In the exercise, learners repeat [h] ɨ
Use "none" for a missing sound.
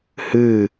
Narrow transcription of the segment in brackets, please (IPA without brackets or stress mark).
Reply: h